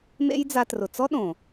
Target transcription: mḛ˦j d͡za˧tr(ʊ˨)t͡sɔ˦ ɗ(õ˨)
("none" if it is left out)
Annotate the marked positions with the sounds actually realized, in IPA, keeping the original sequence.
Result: ʊ˨, õ˨

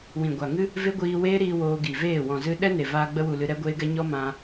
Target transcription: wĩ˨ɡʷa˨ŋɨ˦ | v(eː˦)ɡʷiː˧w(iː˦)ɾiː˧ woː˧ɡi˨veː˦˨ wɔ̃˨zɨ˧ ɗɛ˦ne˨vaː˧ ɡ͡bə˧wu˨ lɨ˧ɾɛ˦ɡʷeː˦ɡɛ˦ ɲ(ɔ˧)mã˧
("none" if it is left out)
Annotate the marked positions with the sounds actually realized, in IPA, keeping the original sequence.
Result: e˦, eː˦, ɔ˦

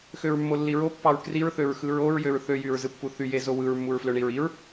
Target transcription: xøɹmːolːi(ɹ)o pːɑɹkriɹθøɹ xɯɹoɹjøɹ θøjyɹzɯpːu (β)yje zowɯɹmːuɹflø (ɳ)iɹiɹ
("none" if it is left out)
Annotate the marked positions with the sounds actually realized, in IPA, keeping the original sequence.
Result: ɹ, θ, ɳ

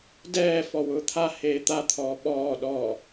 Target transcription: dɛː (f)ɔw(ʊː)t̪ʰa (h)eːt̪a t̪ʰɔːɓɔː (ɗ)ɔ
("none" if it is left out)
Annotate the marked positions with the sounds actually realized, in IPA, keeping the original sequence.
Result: f, ʊː, h, ɗ

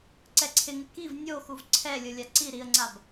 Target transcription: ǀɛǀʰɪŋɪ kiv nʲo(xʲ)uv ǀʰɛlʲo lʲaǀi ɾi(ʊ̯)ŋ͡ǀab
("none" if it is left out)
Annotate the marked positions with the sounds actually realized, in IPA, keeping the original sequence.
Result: x, ə̯

